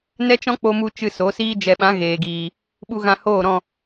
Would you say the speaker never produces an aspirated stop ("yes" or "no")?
yes